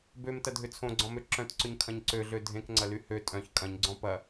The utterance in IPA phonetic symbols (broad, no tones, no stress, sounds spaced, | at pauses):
b ø m t ɐ dʱ ʏ t͡sʰ õ ɡ͡ǀ ɔ̃ m ø ǁ œ̃ t ǀ ʏ ɲ kʰ ɐ̃ ɲ ǀ ø ɮ ø dʱ ẽ k ŋ͡ǀ ɐ l y h ø tʼ œ̃ ç kʼ ɐ̃ ɲ ɡ͡ǀ ɔ̃ p ɐ